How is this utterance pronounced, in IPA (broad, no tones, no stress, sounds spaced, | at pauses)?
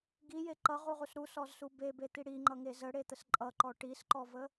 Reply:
ɡ i j e ǃ ʌ ʁ u ʁ u s ɾ u s ɔ z s u b e b e t̪ i ɽ i ŋ͡ǃ ʌ ŋ e z ə ɽ e t̪ ə s ǃʼ ʌ ǃ ɔ ʈ i s ǃ ɔ v ə